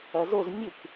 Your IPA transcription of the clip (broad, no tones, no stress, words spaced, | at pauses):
ɐzoz mʲɨk